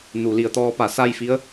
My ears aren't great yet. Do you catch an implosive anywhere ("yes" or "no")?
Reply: no